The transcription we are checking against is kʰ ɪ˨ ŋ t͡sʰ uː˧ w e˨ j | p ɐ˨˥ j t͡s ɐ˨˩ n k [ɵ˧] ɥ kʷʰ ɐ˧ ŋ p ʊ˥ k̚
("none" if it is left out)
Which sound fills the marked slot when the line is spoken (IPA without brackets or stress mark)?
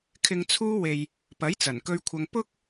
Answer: ɵ˧